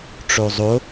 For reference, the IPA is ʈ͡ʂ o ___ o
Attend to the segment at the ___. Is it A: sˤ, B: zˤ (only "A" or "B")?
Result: B